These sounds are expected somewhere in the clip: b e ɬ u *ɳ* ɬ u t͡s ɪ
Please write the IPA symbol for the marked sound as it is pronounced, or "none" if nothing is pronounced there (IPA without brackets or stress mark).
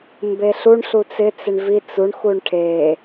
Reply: ɳ